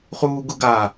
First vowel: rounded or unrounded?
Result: rounded